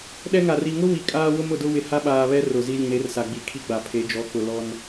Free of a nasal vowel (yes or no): no